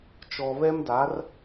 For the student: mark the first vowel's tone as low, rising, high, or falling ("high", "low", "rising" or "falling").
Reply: low